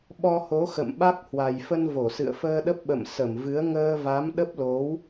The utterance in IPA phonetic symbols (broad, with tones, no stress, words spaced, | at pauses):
ɓɔ˧ho˨˦ xə̰˧˨mɓa˦˥k̚ hwa˨˩jfə˧nvo˧˩ sɨ̰˧˨ə̯fəː˧ɗə˦˥p̚ ɓə̰˧˨m sə˧˩mvɨ˨˦ə̯ ŋəː˧va˨˦m ɗə˦˥p̚lo˨˦w